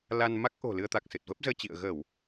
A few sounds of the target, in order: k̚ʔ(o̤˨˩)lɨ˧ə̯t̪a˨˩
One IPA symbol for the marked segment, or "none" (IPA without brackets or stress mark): o̤˨˩